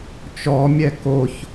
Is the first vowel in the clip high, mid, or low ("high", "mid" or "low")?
mid